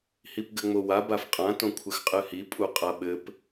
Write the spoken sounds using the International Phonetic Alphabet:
hipɡɘŋ͡mowa bafqʼã tõkʷʰɘxqʼɨhi pʼuqʼaɓɘp

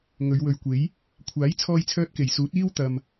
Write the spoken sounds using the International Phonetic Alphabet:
ŋɵ˨˧ɥwɵ˨ɥkʷe˨˥j | kʷʰaː˨˥jt͡sʰɔː˧jt͡sʰœː˧t̚ ke˨˩jsuː˨˥t̚ iː˥wt̪ɐ˨m

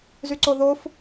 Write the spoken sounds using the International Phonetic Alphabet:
zyǀoðof

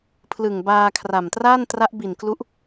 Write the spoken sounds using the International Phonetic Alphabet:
pʰlɯ˨˩ŋbaː˧kʰra˨˩m traː˥˩ntra˦˥ʔbi˨˩nklu˦˥ʔ

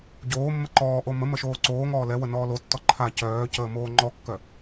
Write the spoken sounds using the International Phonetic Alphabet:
ɟoːmːə ǃɔːʔo məməʃoː ǀoːŋɔː lɛwənɔː lotːɔ ǃʰa cœːcəːmoː ŋ͡ǃɔkːœ

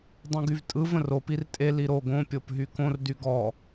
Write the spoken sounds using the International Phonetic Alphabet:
dˤũɡyvtʼɯ və̃rop irtʼe liɾo ɡõ pʲopɦykõr dyɡɔ

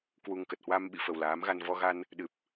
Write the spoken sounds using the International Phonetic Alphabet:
kwu˨˩ŋ kə˨˩t̚hwa˧mɓḭ˧˨ fə˨˩wlaː˨˦mɣa˧n vɔ˧ɣa˧n | ɗɨ˨˩p̚

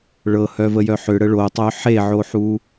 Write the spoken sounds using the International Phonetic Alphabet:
ɭɤhœvəjœ ħʏɽə ɭotˤœ ħeʕoħu

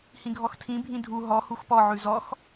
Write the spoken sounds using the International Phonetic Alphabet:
hĩɡʱɔxtʰĩ bʱĩdʱu ɦɔ huxpɔ ʕʉzɔx

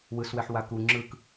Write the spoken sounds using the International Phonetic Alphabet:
wɯswɛħ waku ŋ͡ǁɯk

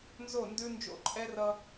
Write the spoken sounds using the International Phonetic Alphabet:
nzo˦˨ndʉ˦ nd͡ʒo̰˦ǃʼɛ˦rʌ˦

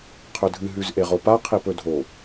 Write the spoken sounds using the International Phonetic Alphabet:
qʰɵdʱɨ ɦʉzʔeʁopa qʰipɵdʱo

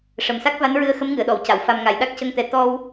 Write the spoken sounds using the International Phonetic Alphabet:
ʂə˨˩msa˦˥k̚va˧˥nɹɨ˧ə̯ xə˧˥mŋɨ˨˩˨ə̯ɗɔ˨˩˨wca˨˩˨w fa˧m ŋa˨˩˨jɗa˦˥k̚cə˧ŋt̪ɛ˨˩˦ t̪ɔ˧w

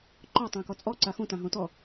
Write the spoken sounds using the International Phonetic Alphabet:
ǃɔtˤõkɔ t͡sʼɔǀa xõtãɦõ tɔ

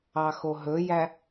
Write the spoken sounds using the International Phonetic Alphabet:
ɑxoɦɵjæ

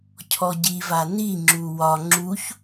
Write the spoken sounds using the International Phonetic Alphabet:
cʰɔɟiva niŋ͡ǁu wɒ ŋ͡ǁuç

